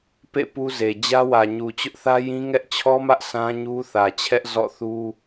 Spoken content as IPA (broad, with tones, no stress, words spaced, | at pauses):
pḛ˦˨ pu˦ze˨ d͡ʑä˦wä˨ɲu˨ t͡ɕʊ˦ʔθä˦jĩ˦ ŋɛ˦ʔt͡ɕʰɔ˦mä˦ʔ sʰã˦ɲu˦θä˨t͡ɕʰɛ˦ʔ zɔ̰˦˨θu˦